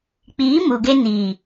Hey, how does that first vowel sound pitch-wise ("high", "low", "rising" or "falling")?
rising